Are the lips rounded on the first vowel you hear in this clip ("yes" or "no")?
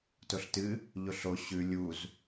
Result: yes